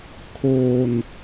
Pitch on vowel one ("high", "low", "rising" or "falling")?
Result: low